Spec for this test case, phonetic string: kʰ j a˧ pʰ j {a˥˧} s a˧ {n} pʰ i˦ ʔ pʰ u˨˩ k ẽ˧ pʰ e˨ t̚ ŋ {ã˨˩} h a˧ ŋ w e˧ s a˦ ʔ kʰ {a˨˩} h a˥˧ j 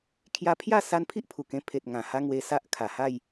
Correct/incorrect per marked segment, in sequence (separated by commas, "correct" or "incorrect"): correct, correct, correct, correct